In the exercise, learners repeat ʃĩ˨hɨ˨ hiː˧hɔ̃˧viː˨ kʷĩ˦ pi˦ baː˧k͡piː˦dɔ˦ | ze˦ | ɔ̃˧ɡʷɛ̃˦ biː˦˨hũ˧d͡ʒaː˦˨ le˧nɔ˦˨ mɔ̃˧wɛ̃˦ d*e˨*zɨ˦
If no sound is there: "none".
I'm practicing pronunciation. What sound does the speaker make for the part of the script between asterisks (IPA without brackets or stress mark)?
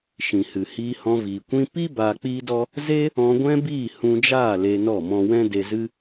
e˧